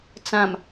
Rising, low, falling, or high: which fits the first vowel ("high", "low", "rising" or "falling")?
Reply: low